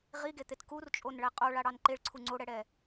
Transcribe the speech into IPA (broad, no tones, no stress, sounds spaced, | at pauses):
ʁ i ɡ e t̪ e t k u r t͡ʃʼ o n ɭ ɛ qʼ o ɭ a ɽ ɑ n ǃ e ɭ ǀʰ u ŋ͡ǀ o ɽ ɛ ɽ ɛ